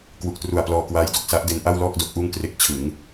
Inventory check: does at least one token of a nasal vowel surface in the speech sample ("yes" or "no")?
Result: no